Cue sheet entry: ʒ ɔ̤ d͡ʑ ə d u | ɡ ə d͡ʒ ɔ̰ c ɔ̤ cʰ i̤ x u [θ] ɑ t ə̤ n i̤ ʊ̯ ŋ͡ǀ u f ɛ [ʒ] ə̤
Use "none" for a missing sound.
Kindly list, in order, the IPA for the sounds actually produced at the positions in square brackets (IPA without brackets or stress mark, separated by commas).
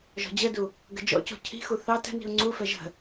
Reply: θ, ʒ